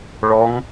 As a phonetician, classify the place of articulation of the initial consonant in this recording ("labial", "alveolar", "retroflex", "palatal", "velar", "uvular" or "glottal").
retroflex